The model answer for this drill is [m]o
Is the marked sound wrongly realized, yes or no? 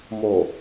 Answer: no